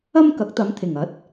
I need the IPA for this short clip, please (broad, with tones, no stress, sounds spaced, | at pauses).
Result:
ɐ˥ m k ɐ˨˥ k̚ t̪ ɐ˨˧ m t̪ʰ ɪ˨˩ ŋ ɐ˨˥ t̚